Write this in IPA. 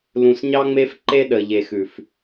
l ũ˨ s ɲ ɑ˦ ŋ͡m e˦ f ǃ e˦ ɗ ə˨ ʎ e˨ x ʉ˨ f

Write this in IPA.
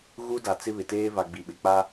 ɣ u˦ d a˨ t͡s ɪ˦ β ɪ˨ t eː˦ v a˨ ɡ͡b i˨ ɓ ɪ˨ k͡p a˦

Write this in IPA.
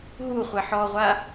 ɦ u χʷ ɛ ħ ɔ ʁʷ a

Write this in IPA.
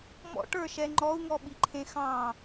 m ɔ̰ ʈ ə˞ ʃ ɛ ŋ͡ǃ ɔ u̯ ŋ ɔ ɓ i ǃʰ ẽ x ɑ̃

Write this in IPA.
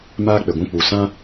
m aː˦ k͡p e˨ ɡʷ ũ˧ k͡p u˨ s ã˦

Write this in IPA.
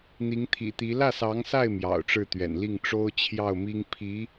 n̪ i˧˥ ŋ t̪ʰ ḭ˨˩ t̪ i˧˥ l ä˥˩ s ɑ˧˥ ŋ s a˥˩ ɪ̯ m j ɑ̰˨˩ ʊ̯ ʈ͡ʂ ɻ̩˥˩ t̪ ɥ ɛ̰˨˩ n l i˥˩ ŋ ʈ͡ʂ o˥ ʊ̯ t͡ɕʰ j ɑ˥˩ ʊ̯ m i˥ ŋ pʰ i˧˥

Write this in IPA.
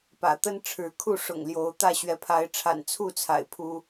p ä̰˨˩ t̪ ə˦ n ʈ͡ʂʰ ɻ̩˨˦ kʰ u˥˨ ʂ ʊ̰˨˩ ŋ l j o˨˦ ʊ̯ t̪ ä˥˨ ɕ ɥ ɛ˨˦ pʰ a˨˦ ɪ̯ ʈ͡ʂʰ a̰˨˩ n t͡sʰ u˥˨ t͡sʰ a̰˨˩ ɪ̯ pʰ u˦

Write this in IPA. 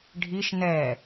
ɖʱ i ʃ n ɛ

